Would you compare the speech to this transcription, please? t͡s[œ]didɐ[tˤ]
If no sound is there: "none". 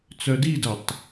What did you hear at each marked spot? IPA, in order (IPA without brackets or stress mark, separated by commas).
œ, tˤ